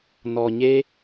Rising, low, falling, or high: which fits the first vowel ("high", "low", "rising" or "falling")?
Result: low